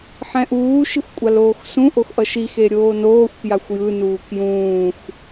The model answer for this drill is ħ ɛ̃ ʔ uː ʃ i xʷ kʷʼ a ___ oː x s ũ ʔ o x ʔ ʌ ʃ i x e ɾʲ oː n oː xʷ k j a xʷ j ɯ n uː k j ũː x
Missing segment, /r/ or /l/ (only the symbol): l